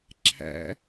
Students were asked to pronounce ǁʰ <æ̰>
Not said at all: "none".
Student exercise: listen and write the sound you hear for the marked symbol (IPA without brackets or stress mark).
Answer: æ̰